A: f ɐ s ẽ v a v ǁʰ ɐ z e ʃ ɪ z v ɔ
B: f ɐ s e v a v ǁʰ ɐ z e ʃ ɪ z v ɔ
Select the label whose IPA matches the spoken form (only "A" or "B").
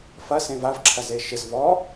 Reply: A